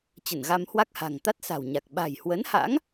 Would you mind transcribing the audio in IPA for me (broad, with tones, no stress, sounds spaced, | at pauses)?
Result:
t͡ɕ ə˧˩ n ɣ a˧ m h w a˦˥ k̚ h a̤˨˩ ŋ t̪ a˦˥ t̚ s a̤˨˩ w ɲ a˨˩ k̚ ɓ a̤˨˩ j h w ə˨˦ n h a̰˧˥ ŋ